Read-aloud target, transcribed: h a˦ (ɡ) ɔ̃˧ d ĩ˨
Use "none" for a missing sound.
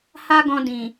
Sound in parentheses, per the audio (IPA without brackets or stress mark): ɡ